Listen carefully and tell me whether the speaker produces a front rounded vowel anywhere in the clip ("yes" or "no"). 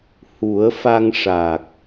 no